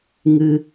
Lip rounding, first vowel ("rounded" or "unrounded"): unrounded